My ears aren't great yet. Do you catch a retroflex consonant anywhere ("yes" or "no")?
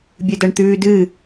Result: yes